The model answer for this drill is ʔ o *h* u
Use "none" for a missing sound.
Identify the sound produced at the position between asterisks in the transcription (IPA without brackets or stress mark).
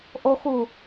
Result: x